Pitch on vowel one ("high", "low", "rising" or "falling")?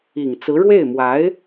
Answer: low